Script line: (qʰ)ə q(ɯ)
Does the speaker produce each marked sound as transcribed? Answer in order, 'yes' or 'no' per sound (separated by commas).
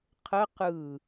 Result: yes, yes